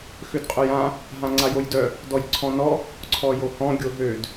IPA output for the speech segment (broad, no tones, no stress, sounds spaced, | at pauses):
x ø d qʼ œ j ã | ɦ ã ŋ͡ǀ a j o j d œ | d ɔ j ǀʰ ɔ̃ n ɔ | ǀʰ ɔ j o h ɔ̃ ɡʲ o ɦ ø d